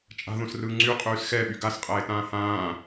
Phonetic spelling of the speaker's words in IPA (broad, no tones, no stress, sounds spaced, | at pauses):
t͡ʃʼ a̤ ð õ s r ɯː ŋ͡ǀ y qʼ yː s x ɛ ɓ y ɡ a s qʼ ɛː ɪ̯ t ãː h ãː